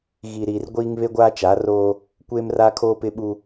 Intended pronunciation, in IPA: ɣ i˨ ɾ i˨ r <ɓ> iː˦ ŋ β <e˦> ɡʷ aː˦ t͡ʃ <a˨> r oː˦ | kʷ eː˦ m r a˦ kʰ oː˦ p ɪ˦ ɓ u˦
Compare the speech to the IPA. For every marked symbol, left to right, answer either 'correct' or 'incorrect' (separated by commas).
incorrect, correct, incorrect